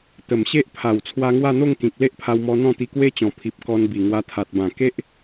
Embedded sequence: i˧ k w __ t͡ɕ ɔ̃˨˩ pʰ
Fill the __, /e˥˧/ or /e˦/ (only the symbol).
e˦